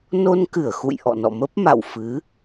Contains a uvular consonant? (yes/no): no